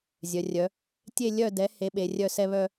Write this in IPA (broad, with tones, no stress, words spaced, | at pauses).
zʲœ˩˧rʲœ˩˧ | tʲe˥˧ lʲœ˥˧dɛ˨˥ he˨˥ ɓe˩˧rʲœ˥˧ sɛ˥˧βœ˥˧